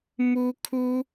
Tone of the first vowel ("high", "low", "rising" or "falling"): high